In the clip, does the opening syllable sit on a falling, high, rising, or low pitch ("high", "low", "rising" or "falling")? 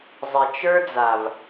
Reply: low